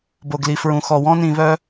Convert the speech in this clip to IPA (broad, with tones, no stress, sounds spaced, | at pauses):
b o˩ ɡ l i˩ f ɹ ũ˩ x ɔ˩ w ɔ̃˥ n ĩ˨ β œ˦